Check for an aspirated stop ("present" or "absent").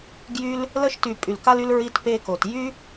absent